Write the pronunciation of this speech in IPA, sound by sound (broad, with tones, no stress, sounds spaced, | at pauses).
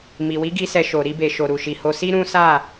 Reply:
m i˨ w i˨˦ ɡ i˧ s ɛ˧ ʃ o˨ ɾ i˧ b e˨ ʃ o˨ ɾ u˨ ʃ i˨ h o˧ s i˦ ɾ ũ˦ s a˦˨